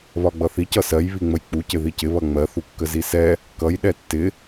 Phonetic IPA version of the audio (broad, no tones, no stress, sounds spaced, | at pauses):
β ɒ ɡ͡b ʌ θ i c ʌ s ɜ j β i ŋ͡m ə j k͡p u c ɪ ð i c ɪ β ʌ ŋ͡m ɜ θ u kː ə z i s ɛ | k ʌ j ɗ ɛ tː ɪ